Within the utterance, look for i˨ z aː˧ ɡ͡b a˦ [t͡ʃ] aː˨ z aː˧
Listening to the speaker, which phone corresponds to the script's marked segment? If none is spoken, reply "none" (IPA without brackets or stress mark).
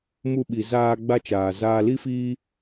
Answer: t͡ʃ